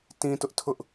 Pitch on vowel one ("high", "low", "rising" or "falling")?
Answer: high